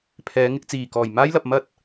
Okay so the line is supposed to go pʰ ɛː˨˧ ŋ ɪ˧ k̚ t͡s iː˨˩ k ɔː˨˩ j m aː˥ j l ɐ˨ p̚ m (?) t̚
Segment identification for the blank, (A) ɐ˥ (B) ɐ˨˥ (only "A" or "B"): A